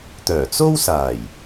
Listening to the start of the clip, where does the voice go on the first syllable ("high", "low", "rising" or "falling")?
low